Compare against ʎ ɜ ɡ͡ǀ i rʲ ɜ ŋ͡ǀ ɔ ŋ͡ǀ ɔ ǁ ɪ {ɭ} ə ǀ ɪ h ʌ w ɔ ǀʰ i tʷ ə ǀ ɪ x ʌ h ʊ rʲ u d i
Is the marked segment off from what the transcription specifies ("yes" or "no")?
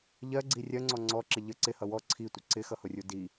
yes